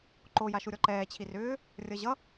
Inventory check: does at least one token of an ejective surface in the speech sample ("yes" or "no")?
no